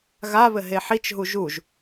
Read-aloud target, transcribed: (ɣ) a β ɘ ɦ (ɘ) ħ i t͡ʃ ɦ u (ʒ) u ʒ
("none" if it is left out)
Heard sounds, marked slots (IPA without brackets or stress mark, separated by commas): ɣ, e, ʒ